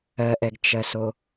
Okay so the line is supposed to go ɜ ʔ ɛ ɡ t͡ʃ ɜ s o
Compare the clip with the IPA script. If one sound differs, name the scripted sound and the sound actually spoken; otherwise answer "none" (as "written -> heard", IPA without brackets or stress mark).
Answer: none